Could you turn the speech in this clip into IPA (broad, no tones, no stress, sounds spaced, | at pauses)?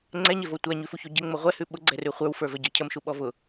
ŋ͡ǀ ɛ ɲ e v o tʷ æ ɲ ʉ f u ç o ɟ ə ŋ͡m ʊ ʁʷ ɛ h ʉ ɓ ʊ ɡ͡ǀ ɛ r ʉ χʷ ə˞ w f ə˞ v ɛ ɟ ə˞ cʰ ə m ʃ u ɓ ɔ v ʊ